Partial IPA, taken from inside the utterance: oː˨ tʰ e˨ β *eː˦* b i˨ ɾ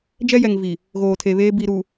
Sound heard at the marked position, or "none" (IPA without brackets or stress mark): eː˦